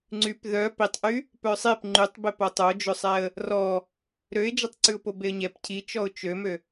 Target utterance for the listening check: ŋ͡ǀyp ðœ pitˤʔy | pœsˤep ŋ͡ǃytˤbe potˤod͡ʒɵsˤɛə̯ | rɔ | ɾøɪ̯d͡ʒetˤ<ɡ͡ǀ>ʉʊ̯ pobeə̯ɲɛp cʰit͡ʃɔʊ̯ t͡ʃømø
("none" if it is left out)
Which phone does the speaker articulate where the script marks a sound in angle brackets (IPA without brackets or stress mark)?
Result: ǀ